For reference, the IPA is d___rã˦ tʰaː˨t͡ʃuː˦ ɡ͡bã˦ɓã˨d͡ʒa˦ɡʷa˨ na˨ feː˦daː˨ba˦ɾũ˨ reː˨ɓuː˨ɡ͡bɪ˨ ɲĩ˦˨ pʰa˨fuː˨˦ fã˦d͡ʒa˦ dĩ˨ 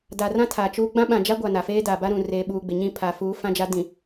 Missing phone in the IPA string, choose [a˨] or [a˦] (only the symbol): a˨